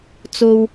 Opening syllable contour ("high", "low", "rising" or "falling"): low